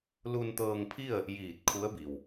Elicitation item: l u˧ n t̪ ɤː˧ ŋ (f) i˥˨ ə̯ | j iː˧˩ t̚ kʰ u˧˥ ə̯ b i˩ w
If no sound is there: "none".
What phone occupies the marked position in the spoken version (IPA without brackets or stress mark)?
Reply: pʰ